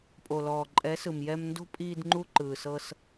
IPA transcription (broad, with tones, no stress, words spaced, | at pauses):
pʼo˨lɔː˨ǃʼɛ˨˦ sɯ˨mjɛ˧mndo̤˦ pʼiː˧dŋ͡ǃu˧ǃɯː˨sɤ˧s